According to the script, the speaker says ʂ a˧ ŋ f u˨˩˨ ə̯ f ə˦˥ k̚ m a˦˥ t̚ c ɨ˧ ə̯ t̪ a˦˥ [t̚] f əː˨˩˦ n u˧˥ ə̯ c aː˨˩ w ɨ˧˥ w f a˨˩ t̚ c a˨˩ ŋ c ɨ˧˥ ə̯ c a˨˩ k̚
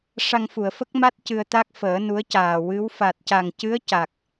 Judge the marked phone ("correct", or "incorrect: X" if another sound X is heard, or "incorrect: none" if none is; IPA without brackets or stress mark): incorrect: k̚